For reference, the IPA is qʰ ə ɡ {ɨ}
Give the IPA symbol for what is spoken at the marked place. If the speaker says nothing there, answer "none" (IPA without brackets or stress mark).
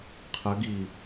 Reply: i